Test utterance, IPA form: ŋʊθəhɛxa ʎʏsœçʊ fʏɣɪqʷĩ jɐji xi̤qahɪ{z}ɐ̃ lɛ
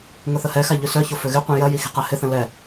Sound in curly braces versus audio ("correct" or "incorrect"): incorrect